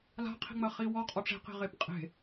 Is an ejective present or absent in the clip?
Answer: present